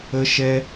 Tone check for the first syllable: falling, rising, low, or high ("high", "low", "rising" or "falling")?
high